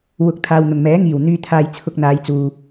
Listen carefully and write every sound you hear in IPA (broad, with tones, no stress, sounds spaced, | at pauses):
w ʊ˨˥ k̚ t̪ʰ aː˨ w n̪ ʊ˨˩ ŋ m ɛː˨˥ ŋ iː˨˩ w n̪ yː˧ t̪ʰ aː˧ j t͡sʰ ʊ˧ k̚ n̪ aː˨˧ j t͡s uː˨